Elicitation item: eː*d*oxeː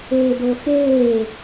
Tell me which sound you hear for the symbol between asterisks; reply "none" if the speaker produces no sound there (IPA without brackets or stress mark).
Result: d